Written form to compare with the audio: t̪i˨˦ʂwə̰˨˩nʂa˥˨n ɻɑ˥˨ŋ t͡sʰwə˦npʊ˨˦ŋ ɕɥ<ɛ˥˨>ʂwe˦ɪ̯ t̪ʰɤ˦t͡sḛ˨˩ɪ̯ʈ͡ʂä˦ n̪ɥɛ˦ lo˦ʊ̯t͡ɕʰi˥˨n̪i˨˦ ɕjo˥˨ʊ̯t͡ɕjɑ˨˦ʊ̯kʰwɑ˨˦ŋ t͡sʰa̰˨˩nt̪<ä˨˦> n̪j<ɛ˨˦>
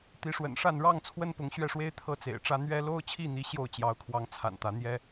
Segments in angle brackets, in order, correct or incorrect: correct, correct, incorrect: ɛ˦

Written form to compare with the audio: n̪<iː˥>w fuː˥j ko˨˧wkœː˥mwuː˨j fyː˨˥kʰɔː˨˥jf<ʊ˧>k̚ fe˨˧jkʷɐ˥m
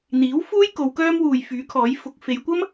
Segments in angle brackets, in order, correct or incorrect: incorrect: iː˨˥, incorrect: ʊ˨˥

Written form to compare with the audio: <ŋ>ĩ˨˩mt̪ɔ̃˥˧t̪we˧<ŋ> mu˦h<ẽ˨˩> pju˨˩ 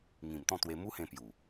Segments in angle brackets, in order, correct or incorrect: correct, incorrect: none, incorrect: ẽ˧

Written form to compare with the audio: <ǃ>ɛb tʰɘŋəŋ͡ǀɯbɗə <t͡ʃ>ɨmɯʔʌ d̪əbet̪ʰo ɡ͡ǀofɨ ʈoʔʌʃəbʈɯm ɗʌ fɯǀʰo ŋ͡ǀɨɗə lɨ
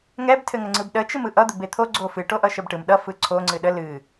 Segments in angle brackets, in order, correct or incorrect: incorrect: ŋ, correct

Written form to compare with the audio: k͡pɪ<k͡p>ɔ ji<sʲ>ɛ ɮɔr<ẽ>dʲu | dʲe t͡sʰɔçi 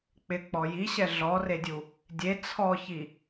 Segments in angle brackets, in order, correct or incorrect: correct, incorrect: ɕ, incorrect: e

